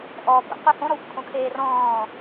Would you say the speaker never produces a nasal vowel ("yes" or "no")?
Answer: no